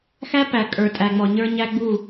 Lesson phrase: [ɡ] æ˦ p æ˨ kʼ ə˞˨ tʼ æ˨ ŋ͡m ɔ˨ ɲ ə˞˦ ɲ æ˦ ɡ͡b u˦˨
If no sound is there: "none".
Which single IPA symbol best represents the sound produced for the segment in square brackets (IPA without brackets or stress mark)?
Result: x